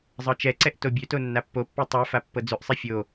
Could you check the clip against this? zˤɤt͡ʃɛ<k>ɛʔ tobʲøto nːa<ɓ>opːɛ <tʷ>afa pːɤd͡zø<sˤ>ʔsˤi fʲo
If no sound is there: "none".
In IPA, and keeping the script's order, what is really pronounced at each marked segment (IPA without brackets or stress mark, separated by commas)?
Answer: ǀ, pː, tˤ, none